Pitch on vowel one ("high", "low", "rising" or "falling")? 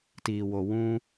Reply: low